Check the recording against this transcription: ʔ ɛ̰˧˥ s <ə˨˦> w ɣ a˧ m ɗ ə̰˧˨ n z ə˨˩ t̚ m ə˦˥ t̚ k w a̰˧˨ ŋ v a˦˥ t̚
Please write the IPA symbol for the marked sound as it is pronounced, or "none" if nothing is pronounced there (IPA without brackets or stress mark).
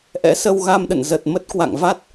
ə˧